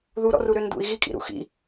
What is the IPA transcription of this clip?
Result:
ð u ɾ ɔ̰ r u ɾ ø n d ṵ i̯ ɣ i kʼ ḭ ɾ ṵ x ḭ

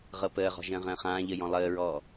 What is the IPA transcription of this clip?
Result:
ʁ ɤ p əː ʁ ɔ̤ ʒ ə̃ː ʁ ə̃ː χ ãː ʎ ə j ɔ̃ lˠ əː ɹ ɔː

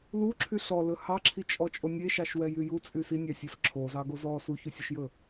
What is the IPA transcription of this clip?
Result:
l u ǁʰ y ɬ ɔ l ɵ h ɑ ǁʰ i t͡ʃʼ ɔ t͡ʃʼ o nʲ e ʃ ɑ ʃ w ɛ j y j u t͡sʼ y s i nʲ ɑ sʲ æ f ǁʰ o z ɑ ɡ o z ɔ s u ç u sʲ o ʃ j ɵ

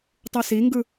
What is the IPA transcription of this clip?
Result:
tˤ ɯ s i ŋ ɡ ɯ

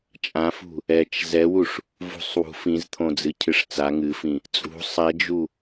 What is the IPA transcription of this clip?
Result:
t͡ʃʼ ã f ṳ | ɛ t͡ʃ z ɛ w u ʂ | v ṳ sˤ w ṳ f ĩ z t̪ʰ õ d͡z ɨ cʰ ɨ ʂ t͡s a ŋ ɨ f ĩ | t͡sʼ ṳ sˤ ɛ d͡ʒ u

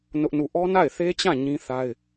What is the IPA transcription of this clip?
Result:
n ʊ˦ ʔ n u˦˨ ʔ ɔ˦ n a˦˨ ɪ̯ θ e˦ t͡ɕ ã˦˨ ɲ ĩ˦ θ a˦ ɪ̯

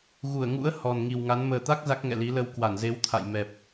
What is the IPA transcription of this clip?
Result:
ɣ u˧˩ ə̯ ŋ ṵ˧˥ ə̯ h ɔ˨˩ n ŋ i˨˩ w ŋ a˨˦ n m əː˨˩ t̪ a˦˥ k̚ z a˦˥ k̚ ŋ ɛ̰˧˨ l i˨˦ l ə˧ w k w a˧˩ n z e˨˦ w t̪ʰ a̰˧˨ j m ɛ˨˩ p̚

